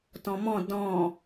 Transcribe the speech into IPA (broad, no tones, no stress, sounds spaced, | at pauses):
t ɔ̃ m ɔ̃ d ɔ̃ː